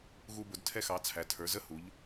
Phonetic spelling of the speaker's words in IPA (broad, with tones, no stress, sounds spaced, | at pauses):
ɣ u˧ b ʊ˩˧ d tʰ ɛ˧ x ɑ˩˧ t͡sʰ æ˩˧ tʰ ə˞˩˧ z ə˧˥˧ h u˩˧ ʎ